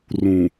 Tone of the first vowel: low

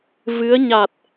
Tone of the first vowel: rising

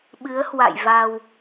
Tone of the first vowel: rising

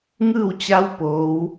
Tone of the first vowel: falling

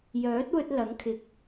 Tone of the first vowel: rising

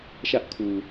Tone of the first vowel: high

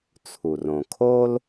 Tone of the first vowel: low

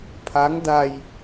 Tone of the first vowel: rising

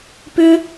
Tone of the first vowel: high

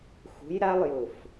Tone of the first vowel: rising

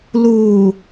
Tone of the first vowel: low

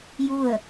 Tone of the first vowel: falling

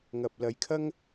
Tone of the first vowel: low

